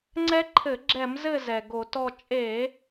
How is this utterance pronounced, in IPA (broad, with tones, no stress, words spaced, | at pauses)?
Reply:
ŋ͡ǀɛ˦˥ǃʰɘ˧˩˧ɡ͡ǁɛ˧˩˧mzɘ˦˨ zɛ˩ɡo˧˩˧tɔ˦˨ t͡ʃʼe˧˩˧